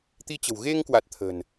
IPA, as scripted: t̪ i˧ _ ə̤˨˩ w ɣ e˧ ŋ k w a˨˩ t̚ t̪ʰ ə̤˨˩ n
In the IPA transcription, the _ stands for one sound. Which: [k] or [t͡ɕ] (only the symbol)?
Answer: t͡ɕ